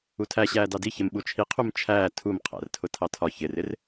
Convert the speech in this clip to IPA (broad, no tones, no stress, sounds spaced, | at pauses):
u tʰ æ ɕ æː d ɑ d i ç ɪ m ɓ u t͡ʃʰ i qʰ u m t͡ʃʰ æː tʰ u m qʰ æ̰ r tʰ ʊ tʰ ɑ tʰ ɒ ç ɪ r ɪ r